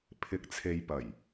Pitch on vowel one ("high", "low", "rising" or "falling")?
low